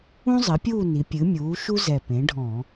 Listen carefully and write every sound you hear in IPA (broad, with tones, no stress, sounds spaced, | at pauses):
ũ˥ zˤ ɘ˩˥ pʲ uː˥˨ n i˩˧ pʲ ɨ˩˥ mʲ uː˩˥ ʃ u˥ z ɛ˨˩ p ẽ˩˥ ɖʱ ɔ̃ː˧˩˧